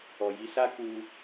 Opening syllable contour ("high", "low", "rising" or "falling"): low